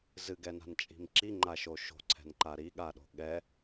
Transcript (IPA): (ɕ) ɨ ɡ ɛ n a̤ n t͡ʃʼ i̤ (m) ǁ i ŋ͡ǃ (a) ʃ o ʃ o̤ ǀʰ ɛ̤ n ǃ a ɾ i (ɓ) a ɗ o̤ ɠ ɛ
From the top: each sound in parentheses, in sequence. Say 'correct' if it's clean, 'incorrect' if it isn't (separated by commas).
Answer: incorrect, correct, correct, incorrect